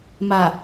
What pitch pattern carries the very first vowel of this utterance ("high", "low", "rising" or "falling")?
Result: low